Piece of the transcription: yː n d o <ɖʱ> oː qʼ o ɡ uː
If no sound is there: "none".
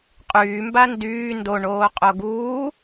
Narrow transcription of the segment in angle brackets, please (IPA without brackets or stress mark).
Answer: ɳ